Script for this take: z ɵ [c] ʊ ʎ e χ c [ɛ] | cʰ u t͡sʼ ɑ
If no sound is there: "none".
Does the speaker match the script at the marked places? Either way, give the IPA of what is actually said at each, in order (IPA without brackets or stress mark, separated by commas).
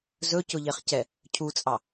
c, ɛ